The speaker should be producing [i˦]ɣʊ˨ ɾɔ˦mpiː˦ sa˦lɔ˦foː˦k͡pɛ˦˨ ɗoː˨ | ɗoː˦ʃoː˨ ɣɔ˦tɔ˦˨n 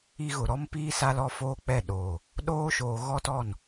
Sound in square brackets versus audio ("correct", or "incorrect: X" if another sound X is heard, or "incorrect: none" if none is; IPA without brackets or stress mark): correct